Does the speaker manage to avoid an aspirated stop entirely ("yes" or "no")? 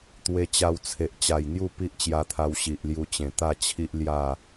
no